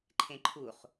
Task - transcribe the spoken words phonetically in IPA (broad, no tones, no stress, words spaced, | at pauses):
ǃʰẽǃʰuχ